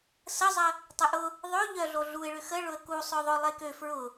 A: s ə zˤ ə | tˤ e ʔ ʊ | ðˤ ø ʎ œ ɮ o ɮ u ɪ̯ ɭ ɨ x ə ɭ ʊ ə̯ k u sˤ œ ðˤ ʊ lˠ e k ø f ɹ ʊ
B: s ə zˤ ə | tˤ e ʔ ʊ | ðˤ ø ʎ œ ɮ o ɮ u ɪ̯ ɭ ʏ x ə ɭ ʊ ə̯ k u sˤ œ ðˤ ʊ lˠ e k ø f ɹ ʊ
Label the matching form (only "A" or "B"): B